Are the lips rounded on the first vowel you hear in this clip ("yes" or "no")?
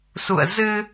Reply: yes